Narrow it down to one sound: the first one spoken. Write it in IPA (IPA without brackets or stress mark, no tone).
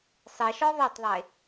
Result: sˤ